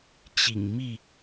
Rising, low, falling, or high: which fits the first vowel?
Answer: low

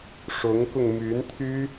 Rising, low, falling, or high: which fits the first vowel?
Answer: rising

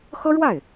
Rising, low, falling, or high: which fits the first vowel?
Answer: high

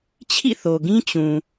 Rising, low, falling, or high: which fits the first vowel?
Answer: falling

